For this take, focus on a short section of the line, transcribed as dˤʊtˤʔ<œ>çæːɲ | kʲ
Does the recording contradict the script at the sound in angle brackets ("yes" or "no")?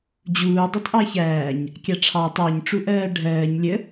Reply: yes